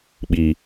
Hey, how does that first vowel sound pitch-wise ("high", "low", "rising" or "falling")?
low